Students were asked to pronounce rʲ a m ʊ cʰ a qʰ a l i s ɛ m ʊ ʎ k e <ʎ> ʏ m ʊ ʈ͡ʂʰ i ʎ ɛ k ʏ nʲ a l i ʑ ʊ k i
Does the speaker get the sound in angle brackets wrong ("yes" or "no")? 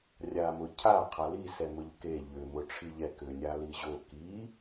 no